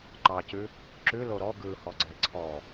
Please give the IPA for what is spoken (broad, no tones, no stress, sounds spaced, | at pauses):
ǃ ɑ c ʉ | ǁ ʉ l o ɾ ɔ ɡ ɯ h ɔ ɡ͡ǀ ɛ ǀʰ ɔ